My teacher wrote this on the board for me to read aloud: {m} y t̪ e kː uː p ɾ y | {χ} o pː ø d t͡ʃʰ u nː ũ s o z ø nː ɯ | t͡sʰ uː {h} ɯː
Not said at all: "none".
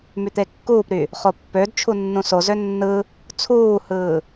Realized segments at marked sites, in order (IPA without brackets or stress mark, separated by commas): m, χ, h